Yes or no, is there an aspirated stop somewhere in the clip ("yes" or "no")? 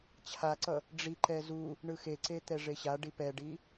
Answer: yes